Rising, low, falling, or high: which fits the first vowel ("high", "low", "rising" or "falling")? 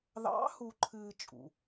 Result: rising